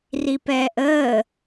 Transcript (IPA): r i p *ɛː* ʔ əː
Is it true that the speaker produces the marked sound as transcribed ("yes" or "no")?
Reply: yes